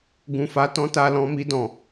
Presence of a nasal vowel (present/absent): present